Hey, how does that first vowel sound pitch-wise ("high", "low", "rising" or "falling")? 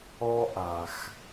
high